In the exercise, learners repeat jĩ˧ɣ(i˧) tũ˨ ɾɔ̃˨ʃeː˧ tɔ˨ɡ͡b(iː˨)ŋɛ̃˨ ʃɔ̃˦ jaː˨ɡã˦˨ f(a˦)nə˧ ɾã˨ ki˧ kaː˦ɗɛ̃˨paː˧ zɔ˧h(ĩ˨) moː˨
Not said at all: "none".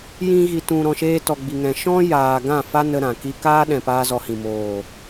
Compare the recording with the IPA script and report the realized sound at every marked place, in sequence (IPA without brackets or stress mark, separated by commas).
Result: i˨, i˨, a˦, ĩ˨